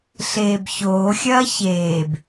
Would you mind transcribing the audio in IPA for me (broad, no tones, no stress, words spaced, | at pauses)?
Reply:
ɬeːbçoːxʲɐː çeːb